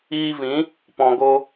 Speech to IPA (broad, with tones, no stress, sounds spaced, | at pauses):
iː˧ v ĩ˨˦ | p ɔ̃˨ ɡ o˧